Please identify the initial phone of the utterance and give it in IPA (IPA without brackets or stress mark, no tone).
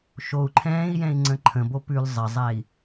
ʃ